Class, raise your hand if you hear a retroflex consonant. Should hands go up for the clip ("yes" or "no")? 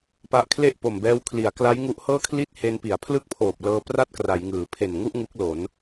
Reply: no